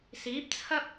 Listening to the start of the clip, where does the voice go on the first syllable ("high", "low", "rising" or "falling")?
rising